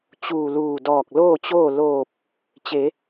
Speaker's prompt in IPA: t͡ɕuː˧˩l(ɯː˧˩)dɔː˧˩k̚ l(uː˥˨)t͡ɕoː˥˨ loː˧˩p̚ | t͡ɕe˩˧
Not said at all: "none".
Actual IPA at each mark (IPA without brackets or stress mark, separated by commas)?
uː˧˩, oː˥˨